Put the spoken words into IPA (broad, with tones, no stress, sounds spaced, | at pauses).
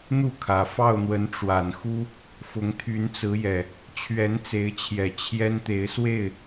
n̪ u˥˨ kʰ ä˨˩ f ɑ˥˨ ʊ̯ n̪ w ə˨˦ n ʈ͡ʂ w a˨˩ n x u˦ | f ʊ˨˦ ŋ t̪ʰ y˨˦ n t͡s ɹ̩˨˦ j ɛ˨˩ | t͡ɕʰ ɥ ɛ˨˦ n t͡s e˨˦ ɪ̯ t͡ɕʰ j ɛ˨˩ t͡ɕʰ j ɛ˦ n t̪ e˨˦ ɪ̯ s w e˥˨ ɪ̯